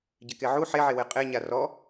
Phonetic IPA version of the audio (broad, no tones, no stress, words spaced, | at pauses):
ɟɪkeʕu ħeʕewe qʼeɲa rɔ